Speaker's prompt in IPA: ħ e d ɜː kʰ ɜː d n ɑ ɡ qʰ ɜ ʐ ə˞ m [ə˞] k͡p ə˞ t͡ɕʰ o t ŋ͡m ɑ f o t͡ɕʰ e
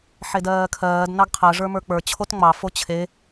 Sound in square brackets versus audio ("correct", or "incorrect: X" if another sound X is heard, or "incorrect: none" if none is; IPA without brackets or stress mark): correct